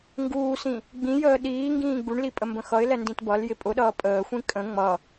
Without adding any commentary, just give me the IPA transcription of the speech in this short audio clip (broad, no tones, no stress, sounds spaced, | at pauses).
ŋ ɡ uː s ĩ | ɡ͡b ĩ j əː ɗ iː ŋ ɡ ĩː ɡ͡b u ɳ l i pʼ ə m b ə̃ x ʌ ɪ̯ l ɛ n d ĩ t b ʌ l j ɪ pʼ ʊ ɗ ʌː pʼ əː xʷ ĩ kʼ ə̃ ŋ͡m ʌ